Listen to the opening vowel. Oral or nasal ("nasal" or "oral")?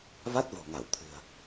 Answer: oral